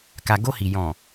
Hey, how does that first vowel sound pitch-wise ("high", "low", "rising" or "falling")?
low